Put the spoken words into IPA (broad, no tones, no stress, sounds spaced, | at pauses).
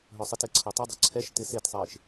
ɦ œ sˤ ɪ t e ǀʰ o tˤ ə dˤ o̤ ǀʰ ɛ ʃ t ɪ s e t sˤ ɪː ʃ